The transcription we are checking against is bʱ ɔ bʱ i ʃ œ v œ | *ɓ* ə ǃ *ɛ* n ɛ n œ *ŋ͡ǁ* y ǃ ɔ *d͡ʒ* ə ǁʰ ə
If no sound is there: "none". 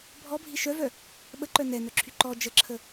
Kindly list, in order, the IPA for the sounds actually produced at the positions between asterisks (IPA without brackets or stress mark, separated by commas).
ɓ, œ, ǁʰ, d͡ʒ